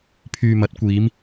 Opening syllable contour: low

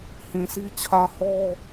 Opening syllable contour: low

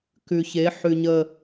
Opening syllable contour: low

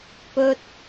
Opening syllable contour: high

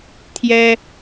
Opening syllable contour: high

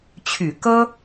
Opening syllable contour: low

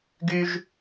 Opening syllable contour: high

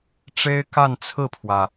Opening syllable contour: high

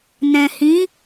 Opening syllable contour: low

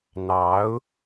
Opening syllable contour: rising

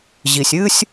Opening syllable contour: low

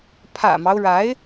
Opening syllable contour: low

